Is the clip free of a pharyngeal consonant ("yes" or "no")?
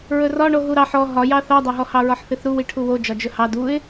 no